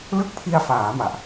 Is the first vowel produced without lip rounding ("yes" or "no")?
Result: yes